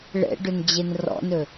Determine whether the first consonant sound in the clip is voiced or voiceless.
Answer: voiced